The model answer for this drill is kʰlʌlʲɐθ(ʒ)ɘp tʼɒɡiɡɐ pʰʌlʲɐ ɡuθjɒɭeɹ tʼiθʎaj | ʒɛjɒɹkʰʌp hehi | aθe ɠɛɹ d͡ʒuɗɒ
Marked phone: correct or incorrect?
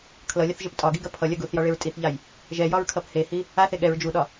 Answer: correct